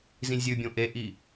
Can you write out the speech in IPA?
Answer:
z ĩ zʲ ʉ bʲ õ ʔ e ʔ i

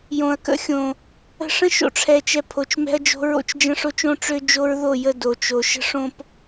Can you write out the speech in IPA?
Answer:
j õ˨ ɐ̯ k ə̰˦ xʲ õ˨ | ə̤˦ ʂ ə̃˦ ʃ o̰˨ ʈ͡ʂʰ ɛ˨ t͡ʃ ɛ˨ pʰ o˨ t͡ʃ m ɛ̤˦ ɐ̯ d͡ʒ o̤˦ ɹ o̰˦ t͡ʃ d͡ʒ ə̃˦ ʂ o˦ t͡ʃ õ˦ ʈ͡ʂ ø˦ d͡ʒ o˦ ɹ ð o˦˨ j ə˦˨ d o˨ t͡ʃ o˨ ʃ ə̤˦ ʂ õ˦ p

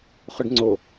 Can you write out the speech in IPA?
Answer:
χ ʊ ɖ ŋ͡ǀ o

